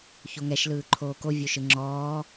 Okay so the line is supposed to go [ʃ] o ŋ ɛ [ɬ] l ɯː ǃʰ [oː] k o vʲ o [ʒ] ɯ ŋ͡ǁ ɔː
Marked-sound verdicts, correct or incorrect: incorrect: ç, incorrect: ʃ, correct, incorrect: ʃ

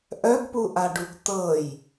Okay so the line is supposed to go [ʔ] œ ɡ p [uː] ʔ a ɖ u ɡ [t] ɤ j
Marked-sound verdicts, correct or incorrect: correct, incorrect: u, correct

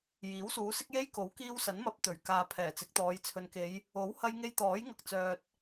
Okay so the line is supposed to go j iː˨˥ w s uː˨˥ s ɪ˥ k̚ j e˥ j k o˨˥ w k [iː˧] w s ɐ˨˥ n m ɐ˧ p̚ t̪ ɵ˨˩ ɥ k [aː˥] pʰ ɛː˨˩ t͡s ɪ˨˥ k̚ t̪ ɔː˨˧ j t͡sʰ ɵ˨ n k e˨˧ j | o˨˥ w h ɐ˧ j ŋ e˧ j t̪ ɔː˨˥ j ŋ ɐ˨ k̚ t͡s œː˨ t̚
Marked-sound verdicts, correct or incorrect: correct, incorrect: aː˨

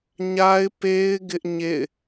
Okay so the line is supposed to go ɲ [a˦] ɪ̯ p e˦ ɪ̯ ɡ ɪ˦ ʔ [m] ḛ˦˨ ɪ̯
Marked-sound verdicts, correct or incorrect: correct, incorrect: ɲ

